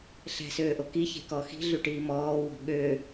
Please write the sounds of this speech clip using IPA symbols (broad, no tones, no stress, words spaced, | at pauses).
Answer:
ɬɛ̤søːʔo kiçe̤kɔ xi̤ɮyʈiː mɔːwɔ̤ ɠø